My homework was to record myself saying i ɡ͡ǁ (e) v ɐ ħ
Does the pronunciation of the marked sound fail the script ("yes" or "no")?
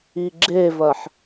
no